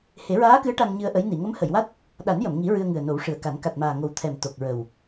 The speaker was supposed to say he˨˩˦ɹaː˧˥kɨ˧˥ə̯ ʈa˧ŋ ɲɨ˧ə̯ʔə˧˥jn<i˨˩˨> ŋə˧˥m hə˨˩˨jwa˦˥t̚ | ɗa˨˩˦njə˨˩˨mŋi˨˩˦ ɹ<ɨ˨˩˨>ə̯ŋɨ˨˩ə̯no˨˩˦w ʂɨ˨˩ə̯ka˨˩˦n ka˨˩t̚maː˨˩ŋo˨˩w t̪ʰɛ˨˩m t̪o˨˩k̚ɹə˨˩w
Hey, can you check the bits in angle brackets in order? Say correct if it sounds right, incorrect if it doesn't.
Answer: correct, incorrect: ɨ˧

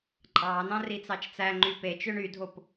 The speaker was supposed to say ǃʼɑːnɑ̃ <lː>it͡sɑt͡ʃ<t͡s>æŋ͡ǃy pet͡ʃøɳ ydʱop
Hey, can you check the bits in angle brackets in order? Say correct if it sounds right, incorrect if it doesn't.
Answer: incorrect: r, correct

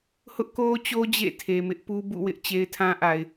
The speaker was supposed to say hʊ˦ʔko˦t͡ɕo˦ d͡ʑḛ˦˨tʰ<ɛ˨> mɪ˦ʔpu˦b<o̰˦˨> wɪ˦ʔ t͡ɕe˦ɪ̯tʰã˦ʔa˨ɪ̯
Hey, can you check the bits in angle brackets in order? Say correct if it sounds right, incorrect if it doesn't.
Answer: incorrect: e˨, incorrect: ṵ˦˨

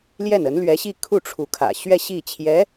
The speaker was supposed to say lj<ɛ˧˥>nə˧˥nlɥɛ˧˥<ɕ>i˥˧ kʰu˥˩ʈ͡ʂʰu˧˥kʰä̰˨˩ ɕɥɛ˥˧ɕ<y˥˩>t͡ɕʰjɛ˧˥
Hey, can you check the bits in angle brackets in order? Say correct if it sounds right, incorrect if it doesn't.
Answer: incorrect: ɛ˥˩, correct, incorrect: i˥˩

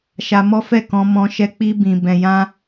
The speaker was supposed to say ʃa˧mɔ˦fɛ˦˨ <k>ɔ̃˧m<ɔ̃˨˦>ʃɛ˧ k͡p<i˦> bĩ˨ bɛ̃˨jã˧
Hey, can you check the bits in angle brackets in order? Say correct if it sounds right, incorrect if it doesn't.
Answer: correct, incorrect: ɔ̃˧, incorrect: i˧

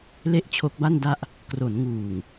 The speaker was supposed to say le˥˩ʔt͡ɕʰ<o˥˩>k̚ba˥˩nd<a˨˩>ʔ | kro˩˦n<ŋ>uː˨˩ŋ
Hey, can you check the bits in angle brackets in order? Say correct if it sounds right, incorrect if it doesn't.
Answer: incorrect: o˦˥, incorrect: a˦˥, correct

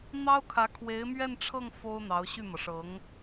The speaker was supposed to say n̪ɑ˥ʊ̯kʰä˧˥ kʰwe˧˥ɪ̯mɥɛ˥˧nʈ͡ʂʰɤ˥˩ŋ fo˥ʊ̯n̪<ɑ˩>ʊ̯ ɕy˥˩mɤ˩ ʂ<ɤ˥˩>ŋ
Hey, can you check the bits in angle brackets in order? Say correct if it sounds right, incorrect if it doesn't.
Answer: incorrect: ɑ˧˥, incorrect: ɤ˧˥

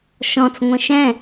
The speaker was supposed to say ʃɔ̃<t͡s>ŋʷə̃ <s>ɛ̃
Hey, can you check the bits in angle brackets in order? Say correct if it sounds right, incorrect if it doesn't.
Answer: correct, incorrect: ʃ

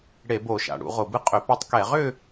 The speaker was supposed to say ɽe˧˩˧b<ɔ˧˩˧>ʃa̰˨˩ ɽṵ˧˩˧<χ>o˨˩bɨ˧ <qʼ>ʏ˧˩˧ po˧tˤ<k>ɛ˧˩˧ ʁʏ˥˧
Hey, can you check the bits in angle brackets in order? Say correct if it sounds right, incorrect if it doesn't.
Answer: incorrect: o˧˩˧, incorrect: ʁ, correct, correct

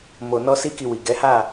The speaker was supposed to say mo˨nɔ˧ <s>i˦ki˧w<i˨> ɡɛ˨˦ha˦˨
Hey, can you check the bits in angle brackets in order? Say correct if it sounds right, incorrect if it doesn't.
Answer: correct, correct

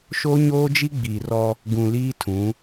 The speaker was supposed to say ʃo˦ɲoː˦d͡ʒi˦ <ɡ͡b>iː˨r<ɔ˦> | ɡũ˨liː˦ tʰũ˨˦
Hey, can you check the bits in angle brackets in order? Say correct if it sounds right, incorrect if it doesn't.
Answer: correct, correct

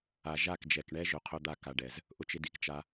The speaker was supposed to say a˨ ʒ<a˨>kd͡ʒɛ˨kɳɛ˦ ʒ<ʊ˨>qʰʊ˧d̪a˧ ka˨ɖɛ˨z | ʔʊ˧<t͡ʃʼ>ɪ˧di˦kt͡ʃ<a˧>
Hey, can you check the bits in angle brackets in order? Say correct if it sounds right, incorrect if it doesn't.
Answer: incorrect: a˦˨, correct, incorrect: t͡ʃ, correct

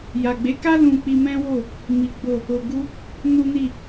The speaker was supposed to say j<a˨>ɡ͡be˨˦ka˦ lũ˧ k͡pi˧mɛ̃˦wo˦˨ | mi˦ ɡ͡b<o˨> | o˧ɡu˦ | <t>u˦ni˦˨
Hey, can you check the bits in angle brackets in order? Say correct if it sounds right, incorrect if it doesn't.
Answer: correct, incorrect: o˦˨, incorrect: n

